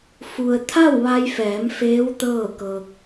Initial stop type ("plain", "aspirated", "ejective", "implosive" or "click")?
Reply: aspirated